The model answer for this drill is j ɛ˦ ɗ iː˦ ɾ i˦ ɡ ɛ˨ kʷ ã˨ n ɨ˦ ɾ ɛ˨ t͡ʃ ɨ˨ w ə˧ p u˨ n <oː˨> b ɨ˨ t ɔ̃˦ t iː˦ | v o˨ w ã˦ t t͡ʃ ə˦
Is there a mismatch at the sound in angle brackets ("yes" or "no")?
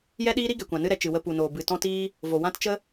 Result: no